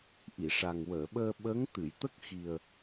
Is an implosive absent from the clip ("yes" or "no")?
no